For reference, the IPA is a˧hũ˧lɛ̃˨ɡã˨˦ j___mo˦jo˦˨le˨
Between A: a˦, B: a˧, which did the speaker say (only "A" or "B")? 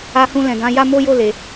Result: A